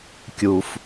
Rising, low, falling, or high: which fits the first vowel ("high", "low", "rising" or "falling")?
low